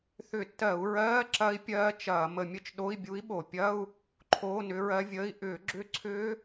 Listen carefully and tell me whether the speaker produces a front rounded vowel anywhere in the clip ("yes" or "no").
yes